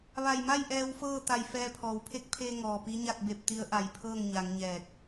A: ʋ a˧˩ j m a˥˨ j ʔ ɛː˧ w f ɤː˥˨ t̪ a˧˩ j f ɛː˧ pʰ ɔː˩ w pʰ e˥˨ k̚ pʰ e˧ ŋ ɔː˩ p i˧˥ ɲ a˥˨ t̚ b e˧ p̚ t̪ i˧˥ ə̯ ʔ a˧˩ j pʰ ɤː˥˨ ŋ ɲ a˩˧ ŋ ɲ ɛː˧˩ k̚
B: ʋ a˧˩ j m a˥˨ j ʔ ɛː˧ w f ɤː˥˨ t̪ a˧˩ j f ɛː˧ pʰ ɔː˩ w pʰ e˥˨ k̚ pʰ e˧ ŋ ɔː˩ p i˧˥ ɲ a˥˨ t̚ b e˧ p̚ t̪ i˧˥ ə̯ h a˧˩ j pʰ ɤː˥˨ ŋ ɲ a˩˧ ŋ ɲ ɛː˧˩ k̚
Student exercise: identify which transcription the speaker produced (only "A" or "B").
A